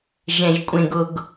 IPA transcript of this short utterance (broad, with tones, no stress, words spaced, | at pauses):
ʒɛ̃˦ʒkʷʼẽ˦ɡ ʊ˦ɡ